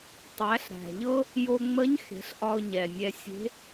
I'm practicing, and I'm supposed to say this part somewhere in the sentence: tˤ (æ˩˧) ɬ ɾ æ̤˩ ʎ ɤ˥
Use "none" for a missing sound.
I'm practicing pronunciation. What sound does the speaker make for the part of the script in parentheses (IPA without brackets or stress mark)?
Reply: æ˩˧